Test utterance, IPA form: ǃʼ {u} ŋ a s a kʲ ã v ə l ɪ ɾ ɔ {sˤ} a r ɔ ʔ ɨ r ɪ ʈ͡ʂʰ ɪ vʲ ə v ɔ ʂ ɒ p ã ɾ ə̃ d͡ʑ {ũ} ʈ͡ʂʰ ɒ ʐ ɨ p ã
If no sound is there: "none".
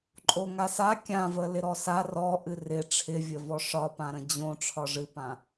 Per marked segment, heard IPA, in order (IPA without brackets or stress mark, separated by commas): o, s, õ